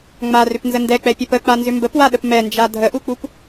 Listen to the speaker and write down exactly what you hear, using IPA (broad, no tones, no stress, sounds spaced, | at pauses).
ŋ͡m a r ʏ p n z ə n d ɛ k͡p ɛ pʲ ɛ p ə k͡p a n z ʏ m b ə p w a ɗ ə p m ɛ n d͡ʒ a dʱ ə ʔ u k͡p u p